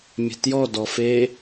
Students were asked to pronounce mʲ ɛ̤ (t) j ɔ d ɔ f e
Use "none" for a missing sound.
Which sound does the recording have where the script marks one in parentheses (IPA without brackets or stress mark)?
t